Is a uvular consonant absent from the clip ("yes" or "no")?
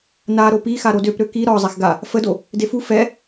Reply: yes